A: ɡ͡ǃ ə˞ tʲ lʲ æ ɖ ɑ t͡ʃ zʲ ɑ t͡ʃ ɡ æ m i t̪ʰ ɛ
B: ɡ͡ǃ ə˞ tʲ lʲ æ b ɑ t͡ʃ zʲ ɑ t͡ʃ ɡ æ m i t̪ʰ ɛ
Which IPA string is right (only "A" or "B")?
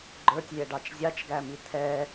A